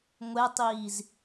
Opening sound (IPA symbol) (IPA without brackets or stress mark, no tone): ŋʷ